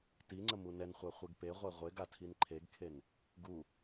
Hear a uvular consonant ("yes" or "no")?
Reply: yes